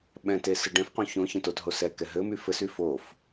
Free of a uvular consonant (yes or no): no